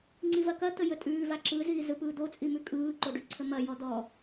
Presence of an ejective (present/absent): present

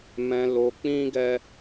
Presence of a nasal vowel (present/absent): present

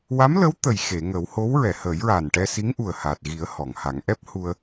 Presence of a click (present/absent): absent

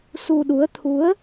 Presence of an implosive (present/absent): present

